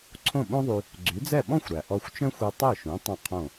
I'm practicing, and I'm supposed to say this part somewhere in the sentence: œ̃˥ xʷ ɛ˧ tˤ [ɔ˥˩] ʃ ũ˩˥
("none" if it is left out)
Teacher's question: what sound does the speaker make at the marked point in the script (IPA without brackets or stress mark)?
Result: ɵ˥˩